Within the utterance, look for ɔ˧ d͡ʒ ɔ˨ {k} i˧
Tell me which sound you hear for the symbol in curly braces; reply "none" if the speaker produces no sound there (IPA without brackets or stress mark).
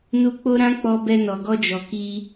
k